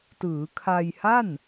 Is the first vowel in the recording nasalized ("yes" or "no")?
no